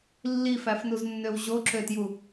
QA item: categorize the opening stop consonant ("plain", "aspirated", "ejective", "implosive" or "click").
click